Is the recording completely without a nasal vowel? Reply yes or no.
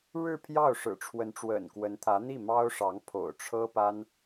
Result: yes